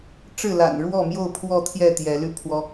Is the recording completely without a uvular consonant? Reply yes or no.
yes